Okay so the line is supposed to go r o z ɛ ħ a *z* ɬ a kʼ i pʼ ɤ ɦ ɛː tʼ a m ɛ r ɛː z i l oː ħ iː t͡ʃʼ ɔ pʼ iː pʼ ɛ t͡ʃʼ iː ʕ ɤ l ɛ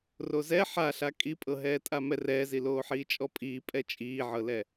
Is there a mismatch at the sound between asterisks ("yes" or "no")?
yes